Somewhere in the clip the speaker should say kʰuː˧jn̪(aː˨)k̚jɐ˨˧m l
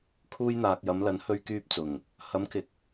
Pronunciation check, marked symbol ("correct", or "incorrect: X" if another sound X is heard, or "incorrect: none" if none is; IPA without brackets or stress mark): correct